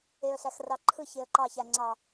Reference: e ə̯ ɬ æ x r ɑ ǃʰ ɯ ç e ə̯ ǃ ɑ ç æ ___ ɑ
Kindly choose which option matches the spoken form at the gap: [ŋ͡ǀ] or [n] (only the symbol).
ŋ͡ǀ